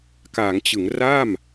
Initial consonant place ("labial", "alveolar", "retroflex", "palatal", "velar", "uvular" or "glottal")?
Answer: velar